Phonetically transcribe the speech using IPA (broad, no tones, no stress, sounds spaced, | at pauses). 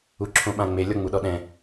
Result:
u ǁʰ õ ɓ ã ŋ͡m e lʲ ɔ ŋ͡m u ɗ ɔ ɗ ɛ̃